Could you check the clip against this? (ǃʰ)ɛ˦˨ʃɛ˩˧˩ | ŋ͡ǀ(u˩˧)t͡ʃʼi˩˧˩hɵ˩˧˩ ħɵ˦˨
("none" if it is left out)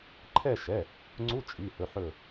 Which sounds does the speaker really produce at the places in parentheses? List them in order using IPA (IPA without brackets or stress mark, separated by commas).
ǃʰ, u˧˥˧